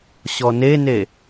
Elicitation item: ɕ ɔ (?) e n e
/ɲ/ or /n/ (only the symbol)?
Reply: n